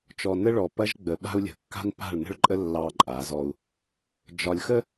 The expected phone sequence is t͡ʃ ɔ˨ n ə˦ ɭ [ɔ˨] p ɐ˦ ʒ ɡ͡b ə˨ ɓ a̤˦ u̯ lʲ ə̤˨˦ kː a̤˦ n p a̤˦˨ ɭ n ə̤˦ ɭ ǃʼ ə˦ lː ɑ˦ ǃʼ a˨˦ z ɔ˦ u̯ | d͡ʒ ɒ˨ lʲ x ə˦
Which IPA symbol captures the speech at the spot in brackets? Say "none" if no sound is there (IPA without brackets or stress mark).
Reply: ɔ˨